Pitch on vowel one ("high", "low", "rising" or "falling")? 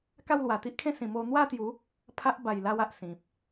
falling